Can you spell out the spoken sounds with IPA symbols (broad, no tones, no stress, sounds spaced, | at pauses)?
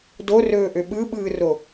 d o r ɵː ʔ ø ɓ ɯ ɓ ɯː r o